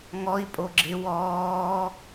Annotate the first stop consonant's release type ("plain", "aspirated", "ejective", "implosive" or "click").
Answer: ejective